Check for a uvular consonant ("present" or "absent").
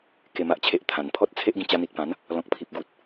absent